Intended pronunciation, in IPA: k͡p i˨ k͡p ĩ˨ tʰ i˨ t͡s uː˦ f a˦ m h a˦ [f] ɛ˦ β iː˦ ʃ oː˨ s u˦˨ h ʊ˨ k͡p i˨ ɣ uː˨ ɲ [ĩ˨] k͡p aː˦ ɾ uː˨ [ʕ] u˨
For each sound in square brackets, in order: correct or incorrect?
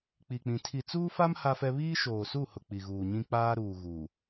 correct, incorrect, incorrect

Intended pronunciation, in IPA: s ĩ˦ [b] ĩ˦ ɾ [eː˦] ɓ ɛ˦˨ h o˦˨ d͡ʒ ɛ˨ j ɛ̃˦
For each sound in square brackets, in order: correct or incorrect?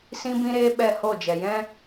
correct, correct

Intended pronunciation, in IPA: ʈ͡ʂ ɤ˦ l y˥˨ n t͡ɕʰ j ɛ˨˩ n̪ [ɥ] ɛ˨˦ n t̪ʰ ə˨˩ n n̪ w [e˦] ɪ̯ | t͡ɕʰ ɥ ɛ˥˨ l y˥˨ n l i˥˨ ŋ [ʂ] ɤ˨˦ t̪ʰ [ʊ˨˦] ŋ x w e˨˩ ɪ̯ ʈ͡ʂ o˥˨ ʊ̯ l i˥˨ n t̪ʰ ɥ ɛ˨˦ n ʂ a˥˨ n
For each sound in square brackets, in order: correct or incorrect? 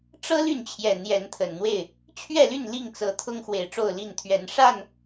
incorrect, incorrect, incorrect, incorrect

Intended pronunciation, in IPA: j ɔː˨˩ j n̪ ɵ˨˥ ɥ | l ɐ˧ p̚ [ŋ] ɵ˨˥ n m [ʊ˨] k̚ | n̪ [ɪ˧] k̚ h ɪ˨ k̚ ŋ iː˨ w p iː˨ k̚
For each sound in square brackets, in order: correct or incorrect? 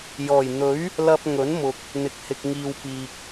correct, correct, incorrect

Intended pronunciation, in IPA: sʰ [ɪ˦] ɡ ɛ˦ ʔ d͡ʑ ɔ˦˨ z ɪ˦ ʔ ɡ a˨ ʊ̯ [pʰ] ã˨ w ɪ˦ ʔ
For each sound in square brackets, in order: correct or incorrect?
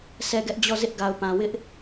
incorrect, incorrect

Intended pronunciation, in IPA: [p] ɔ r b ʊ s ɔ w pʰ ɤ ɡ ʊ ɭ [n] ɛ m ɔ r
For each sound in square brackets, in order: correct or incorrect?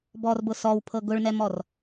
incorrect, correct

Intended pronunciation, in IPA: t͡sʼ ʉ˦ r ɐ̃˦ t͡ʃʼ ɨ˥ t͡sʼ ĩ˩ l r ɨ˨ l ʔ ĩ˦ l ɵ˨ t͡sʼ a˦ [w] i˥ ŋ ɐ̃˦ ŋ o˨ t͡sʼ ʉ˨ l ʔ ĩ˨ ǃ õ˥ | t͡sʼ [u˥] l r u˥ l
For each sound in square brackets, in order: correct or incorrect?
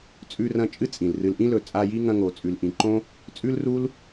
incorrect, incorrect

